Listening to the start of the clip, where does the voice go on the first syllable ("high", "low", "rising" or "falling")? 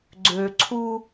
low